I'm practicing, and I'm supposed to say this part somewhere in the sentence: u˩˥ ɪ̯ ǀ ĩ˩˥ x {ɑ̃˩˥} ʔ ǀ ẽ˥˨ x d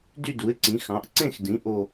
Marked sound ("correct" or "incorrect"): correct